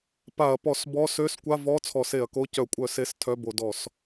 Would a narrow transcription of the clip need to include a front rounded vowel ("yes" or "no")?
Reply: yes